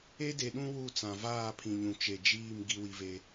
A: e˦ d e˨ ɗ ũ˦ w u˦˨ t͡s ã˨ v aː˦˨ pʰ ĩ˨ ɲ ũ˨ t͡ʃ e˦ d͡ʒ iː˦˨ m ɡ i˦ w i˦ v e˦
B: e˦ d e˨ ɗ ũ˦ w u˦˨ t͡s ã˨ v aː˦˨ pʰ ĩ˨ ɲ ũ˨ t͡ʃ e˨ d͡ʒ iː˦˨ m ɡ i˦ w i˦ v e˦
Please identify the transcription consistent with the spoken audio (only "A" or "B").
B